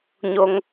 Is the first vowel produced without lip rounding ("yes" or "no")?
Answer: no